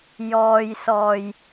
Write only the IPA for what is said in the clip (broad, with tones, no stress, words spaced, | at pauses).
jɔː˨jsɔː˨˩j